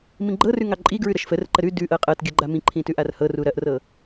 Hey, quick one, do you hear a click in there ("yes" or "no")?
yes